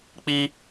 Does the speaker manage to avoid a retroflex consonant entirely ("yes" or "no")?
yes